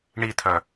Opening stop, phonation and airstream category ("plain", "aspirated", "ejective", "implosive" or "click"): aspirated